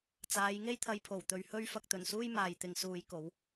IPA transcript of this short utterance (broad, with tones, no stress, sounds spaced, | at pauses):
t͡s aː˨˥ j ŋ e˥ j t̪ʰ ɐ˧ j pʰ o˨˩ w t̪ ɵ˨ ɥ h ɵ˥ ɥ f ɐ˧ k̚ t̪ ɵ˨˩ n s uː˥ j m aː˨ j t̪ ɪ˨ ŋ s uː˨˧ j k o˨˥ w